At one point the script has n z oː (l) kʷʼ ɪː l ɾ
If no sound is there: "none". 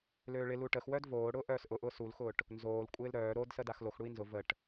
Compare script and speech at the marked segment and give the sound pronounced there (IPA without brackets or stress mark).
l